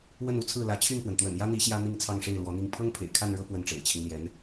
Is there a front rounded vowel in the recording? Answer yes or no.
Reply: yes